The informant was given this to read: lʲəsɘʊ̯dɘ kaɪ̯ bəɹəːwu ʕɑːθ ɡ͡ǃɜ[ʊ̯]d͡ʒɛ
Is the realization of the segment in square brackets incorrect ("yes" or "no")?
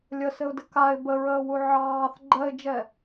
yes